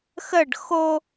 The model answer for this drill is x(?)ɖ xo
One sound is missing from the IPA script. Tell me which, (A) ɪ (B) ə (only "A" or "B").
B